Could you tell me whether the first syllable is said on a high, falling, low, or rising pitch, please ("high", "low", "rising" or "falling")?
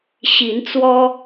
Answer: rising